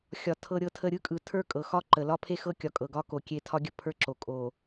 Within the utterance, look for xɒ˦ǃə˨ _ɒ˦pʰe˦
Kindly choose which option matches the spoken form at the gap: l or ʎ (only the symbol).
l